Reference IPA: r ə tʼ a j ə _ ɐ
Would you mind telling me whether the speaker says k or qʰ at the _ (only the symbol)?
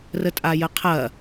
qʰ